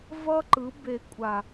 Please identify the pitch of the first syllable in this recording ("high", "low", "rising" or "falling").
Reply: high